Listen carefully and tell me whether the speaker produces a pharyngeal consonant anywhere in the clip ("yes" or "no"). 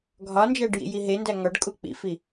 no